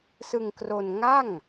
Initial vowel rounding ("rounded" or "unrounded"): unrounded